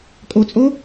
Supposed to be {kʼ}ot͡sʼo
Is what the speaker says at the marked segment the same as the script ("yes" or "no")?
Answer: yes